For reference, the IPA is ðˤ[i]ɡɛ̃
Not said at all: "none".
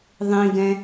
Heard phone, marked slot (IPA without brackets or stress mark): ĩ